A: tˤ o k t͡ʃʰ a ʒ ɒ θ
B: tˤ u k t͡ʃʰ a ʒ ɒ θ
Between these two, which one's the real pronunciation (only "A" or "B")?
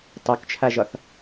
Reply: A